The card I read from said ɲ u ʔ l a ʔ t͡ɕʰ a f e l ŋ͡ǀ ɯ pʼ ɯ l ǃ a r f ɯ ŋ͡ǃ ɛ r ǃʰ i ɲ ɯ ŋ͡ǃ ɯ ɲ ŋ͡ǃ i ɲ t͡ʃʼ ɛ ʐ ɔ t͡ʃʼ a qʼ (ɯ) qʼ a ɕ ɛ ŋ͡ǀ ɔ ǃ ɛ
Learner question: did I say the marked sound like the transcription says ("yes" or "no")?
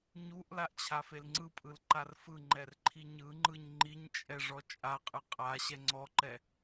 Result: yes